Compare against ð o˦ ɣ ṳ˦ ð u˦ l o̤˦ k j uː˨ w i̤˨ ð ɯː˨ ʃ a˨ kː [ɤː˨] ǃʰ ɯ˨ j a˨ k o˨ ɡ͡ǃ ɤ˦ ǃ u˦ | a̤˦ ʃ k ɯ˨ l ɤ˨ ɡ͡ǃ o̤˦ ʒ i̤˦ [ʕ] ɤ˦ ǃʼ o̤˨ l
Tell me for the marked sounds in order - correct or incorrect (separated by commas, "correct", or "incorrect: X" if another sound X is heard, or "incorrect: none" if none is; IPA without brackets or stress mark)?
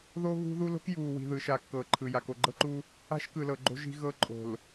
correct, incorrect: ɣ